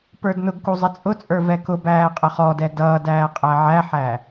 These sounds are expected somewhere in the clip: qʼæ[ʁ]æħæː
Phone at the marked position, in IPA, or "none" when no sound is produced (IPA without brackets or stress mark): ʕ